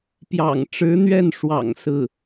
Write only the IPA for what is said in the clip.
p j ɑ̰˨˩ ŋ ʈ͡ʂ ɻ̩˧˥ n̪ ɥ ɛ˥˩ n ʂ w ɑ̰˨˩ ŋ s ɹ̩˥˩

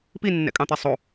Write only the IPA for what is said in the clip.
p i nː ɛ̰ kʼ ɑ̃ t̪ ɛ sˤ o

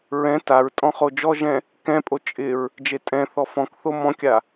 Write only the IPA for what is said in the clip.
ɹ ɛ̃ t a ɹ tʼ ɔ̃ χ o d͡ʒ ɔ ʒ ɛ̃ | k ɛ̃ pʼ o t͡ʃʼ ɪ ɹ | d͡ʒ e tʼ ɛ̃ θ ɔ f ɔ̃ k θ o m ɔ̃ kʲ a

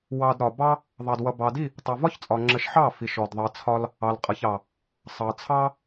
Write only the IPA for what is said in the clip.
w ɑ˧ d ɾ ɒ˨ b ɑ˦ | ðˤ ɑ˧ d w ʌ˧ b ɑ˨ d i˦˨ | tˤ ʌ˨ v ɒ˦ ç t͡sʼ ɒ˨ ŋ͡ǁ ə˨˦ ʃ ħ ɑ˦˨ f i˨ ʃ ɔ˨ d ðˤ ɑ˨ t͡sʰ ɒ˧ l | ɑ˨ l qʼ ʌ˨ ç ɑ˨ | sˤ ɑ˨ t͡sʰ ɑ˦

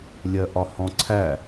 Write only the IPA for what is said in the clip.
lʲ ɜ ʔ ɒ h ɔ̃ ǀʰ æ

